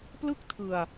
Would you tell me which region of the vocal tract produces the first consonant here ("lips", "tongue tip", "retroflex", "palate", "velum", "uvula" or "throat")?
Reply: lips